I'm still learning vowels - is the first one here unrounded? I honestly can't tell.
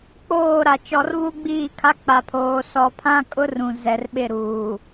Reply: no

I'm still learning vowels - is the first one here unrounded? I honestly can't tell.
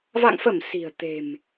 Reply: yes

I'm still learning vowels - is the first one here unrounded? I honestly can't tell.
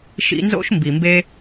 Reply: yes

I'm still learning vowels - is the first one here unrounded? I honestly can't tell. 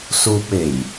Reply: no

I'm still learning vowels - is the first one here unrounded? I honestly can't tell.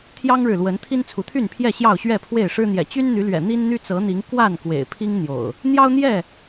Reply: yes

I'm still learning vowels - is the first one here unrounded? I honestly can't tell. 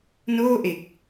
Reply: no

